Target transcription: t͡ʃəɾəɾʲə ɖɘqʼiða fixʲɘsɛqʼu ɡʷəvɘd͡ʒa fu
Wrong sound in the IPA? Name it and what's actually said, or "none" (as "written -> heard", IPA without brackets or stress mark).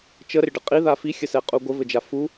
none